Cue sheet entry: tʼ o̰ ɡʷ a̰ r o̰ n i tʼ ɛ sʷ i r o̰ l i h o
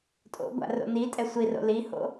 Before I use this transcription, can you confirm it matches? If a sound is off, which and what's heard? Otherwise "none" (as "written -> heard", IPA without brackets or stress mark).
o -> o̰